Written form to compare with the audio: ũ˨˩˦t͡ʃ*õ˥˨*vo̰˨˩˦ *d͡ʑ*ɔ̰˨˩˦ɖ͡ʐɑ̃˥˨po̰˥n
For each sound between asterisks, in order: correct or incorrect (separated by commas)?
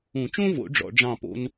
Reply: incorrect, incorrect